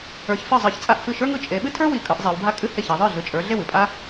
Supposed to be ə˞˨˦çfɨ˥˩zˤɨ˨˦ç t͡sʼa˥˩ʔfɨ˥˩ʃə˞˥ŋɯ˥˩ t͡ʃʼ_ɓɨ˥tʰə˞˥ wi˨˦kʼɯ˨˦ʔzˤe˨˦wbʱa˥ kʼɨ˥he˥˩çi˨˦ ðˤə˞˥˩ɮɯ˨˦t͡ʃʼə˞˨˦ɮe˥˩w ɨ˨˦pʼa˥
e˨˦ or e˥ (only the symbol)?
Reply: e˨˦